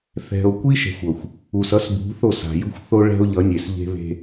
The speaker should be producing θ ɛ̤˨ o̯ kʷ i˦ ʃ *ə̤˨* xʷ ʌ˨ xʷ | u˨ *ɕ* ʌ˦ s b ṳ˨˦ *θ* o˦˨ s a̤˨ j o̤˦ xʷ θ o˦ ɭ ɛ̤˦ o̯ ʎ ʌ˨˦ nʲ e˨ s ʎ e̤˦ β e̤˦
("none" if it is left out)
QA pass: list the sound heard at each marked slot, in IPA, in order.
ɛ̤˨, s, θ

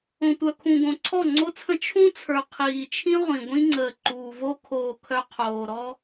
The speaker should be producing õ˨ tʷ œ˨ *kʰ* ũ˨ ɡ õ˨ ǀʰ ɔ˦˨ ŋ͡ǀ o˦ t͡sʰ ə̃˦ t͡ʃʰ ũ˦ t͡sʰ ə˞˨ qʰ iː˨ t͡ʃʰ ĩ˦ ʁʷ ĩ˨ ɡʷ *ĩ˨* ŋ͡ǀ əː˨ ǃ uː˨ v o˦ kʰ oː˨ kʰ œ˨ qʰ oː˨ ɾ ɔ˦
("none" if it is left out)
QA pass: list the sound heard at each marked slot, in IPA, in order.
kʰ, ĩ˦

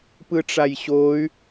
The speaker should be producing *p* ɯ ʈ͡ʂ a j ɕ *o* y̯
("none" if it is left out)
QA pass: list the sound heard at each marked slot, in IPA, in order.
p, o

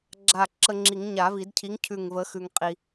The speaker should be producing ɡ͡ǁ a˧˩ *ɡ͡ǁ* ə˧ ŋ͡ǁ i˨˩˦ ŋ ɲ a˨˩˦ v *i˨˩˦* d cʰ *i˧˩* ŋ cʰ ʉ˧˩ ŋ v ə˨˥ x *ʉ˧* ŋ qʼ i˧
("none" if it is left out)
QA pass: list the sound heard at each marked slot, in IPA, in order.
ǁ, i˨˩˦, i˨˥, ʉ˧

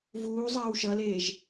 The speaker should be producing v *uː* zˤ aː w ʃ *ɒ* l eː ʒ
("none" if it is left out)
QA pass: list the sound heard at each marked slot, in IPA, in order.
uː, ʌ

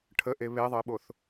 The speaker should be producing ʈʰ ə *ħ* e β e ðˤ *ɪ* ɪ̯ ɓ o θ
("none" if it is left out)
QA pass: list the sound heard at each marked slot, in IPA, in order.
ʔ, ə

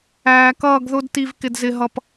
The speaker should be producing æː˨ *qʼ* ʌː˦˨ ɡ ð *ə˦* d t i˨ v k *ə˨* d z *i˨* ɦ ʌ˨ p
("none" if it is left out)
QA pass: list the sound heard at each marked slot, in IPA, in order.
k, ʊ˦, ɪ˨, ɪ˨

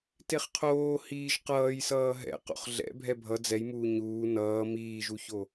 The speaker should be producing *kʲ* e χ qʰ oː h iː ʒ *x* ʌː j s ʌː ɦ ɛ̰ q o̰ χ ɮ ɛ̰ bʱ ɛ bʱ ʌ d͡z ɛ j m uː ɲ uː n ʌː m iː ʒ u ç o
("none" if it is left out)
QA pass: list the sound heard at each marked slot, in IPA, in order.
t, q

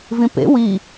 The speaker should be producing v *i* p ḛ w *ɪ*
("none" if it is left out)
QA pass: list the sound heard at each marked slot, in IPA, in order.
ĩ, i

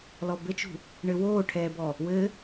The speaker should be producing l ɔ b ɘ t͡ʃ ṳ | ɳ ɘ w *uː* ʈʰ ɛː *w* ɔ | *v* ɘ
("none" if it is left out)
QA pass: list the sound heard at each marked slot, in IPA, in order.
oː, b, w

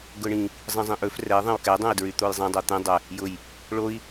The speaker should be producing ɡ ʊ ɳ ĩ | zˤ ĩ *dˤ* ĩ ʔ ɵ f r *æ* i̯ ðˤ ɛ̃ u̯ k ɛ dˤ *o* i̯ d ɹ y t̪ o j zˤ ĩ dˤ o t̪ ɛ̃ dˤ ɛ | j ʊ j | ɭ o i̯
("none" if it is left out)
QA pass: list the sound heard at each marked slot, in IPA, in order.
zˤ, ɛ, õ

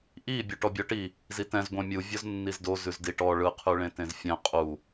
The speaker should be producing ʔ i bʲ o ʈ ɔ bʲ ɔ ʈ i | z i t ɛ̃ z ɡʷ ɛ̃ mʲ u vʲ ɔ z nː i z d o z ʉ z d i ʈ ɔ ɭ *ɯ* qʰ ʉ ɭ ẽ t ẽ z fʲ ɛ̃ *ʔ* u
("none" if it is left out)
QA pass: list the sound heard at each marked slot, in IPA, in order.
ɯ, qʼ

